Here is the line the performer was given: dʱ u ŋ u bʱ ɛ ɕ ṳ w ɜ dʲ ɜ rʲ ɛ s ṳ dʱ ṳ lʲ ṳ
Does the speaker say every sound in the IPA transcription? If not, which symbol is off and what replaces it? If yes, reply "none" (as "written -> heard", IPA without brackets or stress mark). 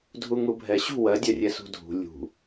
none